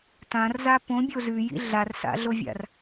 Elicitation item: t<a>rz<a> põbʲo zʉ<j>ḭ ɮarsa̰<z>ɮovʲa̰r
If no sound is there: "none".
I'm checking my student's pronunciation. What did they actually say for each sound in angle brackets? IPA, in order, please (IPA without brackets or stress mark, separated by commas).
ã, a, j, none